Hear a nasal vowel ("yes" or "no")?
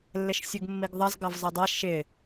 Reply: no